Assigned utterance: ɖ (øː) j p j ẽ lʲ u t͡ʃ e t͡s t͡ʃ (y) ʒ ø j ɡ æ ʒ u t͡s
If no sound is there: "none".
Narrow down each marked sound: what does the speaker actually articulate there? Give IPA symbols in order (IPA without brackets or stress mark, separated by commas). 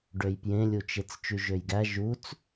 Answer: ø, y